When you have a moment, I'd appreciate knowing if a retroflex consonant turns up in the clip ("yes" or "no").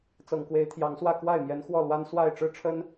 yes